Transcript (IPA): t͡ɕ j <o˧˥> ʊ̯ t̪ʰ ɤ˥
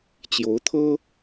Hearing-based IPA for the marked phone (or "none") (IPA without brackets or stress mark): o˧˥